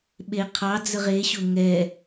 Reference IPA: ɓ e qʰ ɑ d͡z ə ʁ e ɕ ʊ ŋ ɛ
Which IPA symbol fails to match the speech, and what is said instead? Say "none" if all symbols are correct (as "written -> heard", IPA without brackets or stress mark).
none